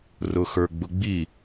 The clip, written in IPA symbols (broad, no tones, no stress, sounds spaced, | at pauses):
r ʊ x ə˞ ɡ͡b ʊ ɡ͡b i